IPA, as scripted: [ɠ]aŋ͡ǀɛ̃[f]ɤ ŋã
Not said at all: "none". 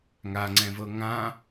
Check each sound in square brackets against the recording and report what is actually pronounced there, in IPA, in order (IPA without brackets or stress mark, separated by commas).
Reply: ŋ, v